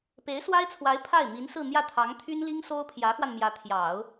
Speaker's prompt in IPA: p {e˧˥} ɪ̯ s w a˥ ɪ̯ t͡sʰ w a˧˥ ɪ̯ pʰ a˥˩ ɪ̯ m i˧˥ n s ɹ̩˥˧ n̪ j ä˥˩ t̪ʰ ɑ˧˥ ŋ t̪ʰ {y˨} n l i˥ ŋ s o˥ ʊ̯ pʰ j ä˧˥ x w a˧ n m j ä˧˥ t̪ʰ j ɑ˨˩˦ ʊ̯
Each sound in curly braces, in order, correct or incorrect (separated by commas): correct, incorrect